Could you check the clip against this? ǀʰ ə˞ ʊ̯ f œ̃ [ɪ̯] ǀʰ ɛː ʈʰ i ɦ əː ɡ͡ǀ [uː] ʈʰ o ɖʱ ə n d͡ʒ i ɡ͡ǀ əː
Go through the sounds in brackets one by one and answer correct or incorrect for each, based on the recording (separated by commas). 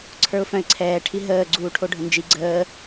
correct, correct